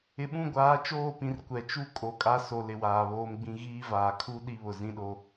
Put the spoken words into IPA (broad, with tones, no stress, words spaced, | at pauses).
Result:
ɪ˨ɓũ˦˨ɡʷaː˨˦ t͡ʃoː˦˨pĩ˨r kʷɛ˨t͡ʃu˦ kʼo˨kʼa˦so˨ lɪ˨waː˨βoː˦mɡ͡bĩ˦ ɣiː˦vaː˨ kʰu˦ ɗi˦βʊ˨zĩ˦ɗo˦